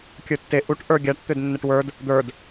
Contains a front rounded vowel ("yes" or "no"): yes